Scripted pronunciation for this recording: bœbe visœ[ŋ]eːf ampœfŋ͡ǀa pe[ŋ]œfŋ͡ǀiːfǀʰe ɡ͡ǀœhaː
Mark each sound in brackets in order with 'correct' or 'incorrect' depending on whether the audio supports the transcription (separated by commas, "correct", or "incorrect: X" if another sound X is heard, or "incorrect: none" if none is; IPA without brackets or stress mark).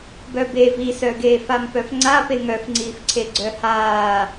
incorrect: ɡ, correct